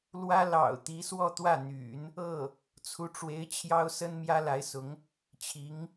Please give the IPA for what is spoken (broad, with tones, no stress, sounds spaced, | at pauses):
l w ä˥ l ɑ̰˨˩ ʊ̯ t̪ i˧˥ s w ɔ˥˧ t̪ w ä˥˩ n̪ y̰˨˩˦ n | ɤ˥˩ | t͡sʰ u˧˥ ʈ͡ʂ w e˧˥ ɪ̯ t͡ɕʰ j ɑ˥ ʊ̯ s ə˥ n m j ä˥ l a˧˥ ɪ̯ s ʊ˧˥ ŋ | t͡ɕʰ i˧˥ ŋ